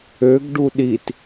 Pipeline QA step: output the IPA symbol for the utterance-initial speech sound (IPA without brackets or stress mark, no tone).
ø